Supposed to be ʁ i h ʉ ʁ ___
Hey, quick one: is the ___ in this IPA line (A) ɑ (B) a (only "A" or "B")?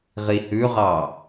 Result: A